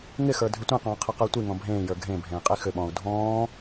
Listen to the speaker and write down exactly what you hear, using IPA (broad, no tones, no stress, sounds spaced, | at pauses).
ŋ ɪ x ə˞ dʱ ʏ tʷ ẽ q ɔ̃ː qʰ ɪ q ə˞ tʷ i ŋ ɔ̃ bʱ ẽː j ə˞ ɡʱ ẽ bʱ ẽː qʼ i x ʏ ɓ ɔ̃ː u̯ dʱ ɔ̃ː